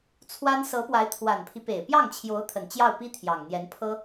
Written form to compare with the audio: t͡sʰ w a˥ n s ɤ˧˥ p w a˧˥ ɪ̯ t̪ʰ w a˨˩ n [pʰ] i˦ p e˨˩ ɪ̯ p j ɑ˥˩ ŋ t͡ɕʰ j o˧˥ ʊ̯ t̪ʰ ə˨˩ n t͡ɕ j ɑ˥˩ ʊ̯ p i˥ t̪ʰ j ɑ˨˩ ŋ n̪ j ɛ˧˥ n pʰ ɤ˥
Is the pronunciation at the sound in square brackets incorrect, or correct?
correct